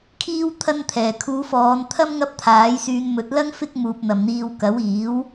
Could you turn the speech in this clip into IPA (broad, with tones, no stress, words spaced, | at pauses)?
kʰiː˥w t̪ʰɐ˥nt̪ʰɛː˨˩ kʰuː˨˧fɔː˨˧nt̪ʰɐ˥m ŋɐ˥p̚t̪ʰaː˨˥jsyː˧n mɵ˨˥t̚lɐ˥ŋ fɪ˥k̚muː˨p̚ n̪ɐ˨˩mn̪iː˨w kɐ˨˥wiː˨˥w